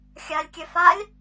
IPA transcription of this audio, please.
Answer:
xʲ a lʲ kʲ ɛ f a lʲ

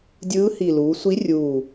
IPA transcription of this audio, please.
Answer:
dʲ ɯː˧˥ h i˨˩ l uː˩˧ sʷ i˧˥ rʲ uː˨˩

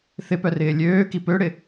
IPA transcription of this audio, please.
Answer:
θ ɪ p œ r ɪː lʲ øː k i p ø ɽ ɪ

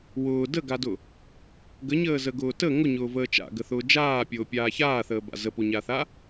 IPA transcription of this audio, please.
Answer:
w ʊː d ə ɡ a d ʊ | ɡ ə ɲ əː z ə ɡ ʊː t ə ŋ ʊ ɲ ʊː v əː t͡ʃ a̰ ɡ ə θ ʊː d͡ʒ aː pʲ ʊː pʲ aː ç aː θ əː b a̰ z ə p o ɲ a θ a

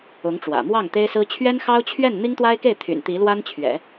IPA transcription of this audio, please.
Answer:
ʊ˧˥ ŋ ʈ͡ʂ w ä̰˨˩ m w ɑ˥˩ ŋ t̪ e˥ ɪ̯ s ɹ̩˥ t͡ɕʰ ɥ ɛ˥ n x ɑ˥ ʊ̯ t͡ɕʰ ɥ ɛ˥˩ n n̪ i˥ ŋ t̪ w a˥ ɪ̯ k e˥˩ ɪ̯ t̪ʰ y̰˨˩ n t̪ i˧˥ l w a˥ n t͡ɕʰ ɥ ɛ̰˨˩˦

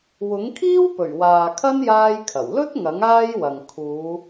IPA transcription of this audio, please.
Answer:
w ʊ˨˥ ŋ kʰ iː˥ w p ɵ˨˩ ɥ w aː˨ kʰ ɐ˥ n j aː˥ j kʰ ɐ˨˩ w l ɵ˥ t̚ ŋ ɐ˨˥ ŋ aː˥ j w ɐ˨ ŋ kʰ uː˨˧

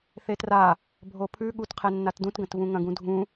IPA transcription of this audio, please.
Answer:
θ e t r a | bʱ o pʰ ʉ ɠ u t qʰ e nː a t d ũ t ɡ ɐ̃ t v ũ ŋ ɐ̃ ɡ ũ dʱ ũ

